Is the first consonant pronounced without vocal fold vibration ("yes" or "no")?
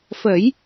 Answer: yes